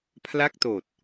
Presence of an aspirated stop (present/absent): present